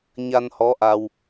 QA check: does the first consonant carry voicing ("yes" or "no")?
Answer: yes